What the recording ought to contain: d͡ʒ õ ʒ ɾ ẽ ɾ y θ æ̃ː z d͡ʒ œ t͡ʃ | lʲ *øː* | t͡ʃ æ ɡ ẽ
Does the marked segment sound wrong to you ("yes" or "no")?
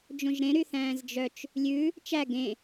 yes